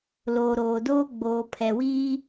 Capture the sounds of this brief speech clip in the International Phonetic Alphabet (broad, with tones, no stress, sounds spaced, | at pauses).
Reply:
l oː˨ ɾ oː˨ d oː˦ ɡ͡b oː˨ pʰ ɛ˨ w iː˦